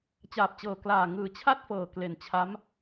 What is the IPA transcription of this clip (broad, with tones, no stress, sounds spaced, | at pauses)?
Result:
t͡ɕ aː˨˩ p̚ t͡ɕ ɤː˨˩ k l aː˨˩ ŋ ɯː˨˩ t͡ɕʰ a˥˩ t̚ f ɤː˨˩ k l e˨˩ n t͡ɕʰ a˦˥ m